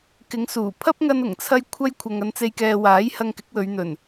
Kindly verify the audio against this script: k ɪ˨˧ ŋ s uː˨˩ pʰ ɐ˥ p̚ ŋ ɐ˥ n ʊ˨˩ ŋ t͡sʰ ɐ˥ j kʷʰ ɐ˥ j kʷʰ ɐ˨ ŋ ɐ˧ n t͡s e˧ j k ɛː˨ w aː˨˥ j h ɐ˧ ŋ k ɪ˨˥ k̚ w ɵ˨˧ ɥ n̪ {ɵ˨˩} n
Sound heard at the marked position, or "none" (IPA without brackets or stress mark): ɵ˨˩